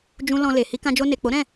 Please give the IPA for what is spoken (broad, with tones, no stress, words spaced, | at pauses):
d͡ʒũ˧ lɔ̃˧le˨ hi˧kã˧d͡ʒo˧ ne˨k͡po˨˦ɾɛ̃˦˨